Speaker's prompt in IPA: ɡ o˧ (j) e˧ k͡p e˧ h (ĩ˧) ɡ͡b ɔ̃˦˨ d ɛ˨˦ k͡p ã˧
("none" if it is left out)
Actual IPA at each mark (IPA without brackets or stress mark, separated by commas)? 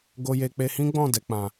j, ĩ˦